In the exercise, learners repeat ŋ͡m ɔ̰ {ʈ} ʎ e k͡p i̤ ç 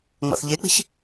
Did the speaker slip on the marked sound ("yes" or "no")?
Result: yes